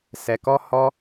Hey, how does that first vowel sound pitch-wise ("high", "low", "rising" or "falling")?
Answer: low